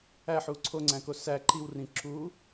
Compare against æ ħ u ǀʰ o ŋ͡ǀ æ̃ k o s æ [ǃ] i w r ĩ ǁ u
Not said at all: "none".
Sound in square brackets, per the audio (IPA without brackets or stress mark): ǃ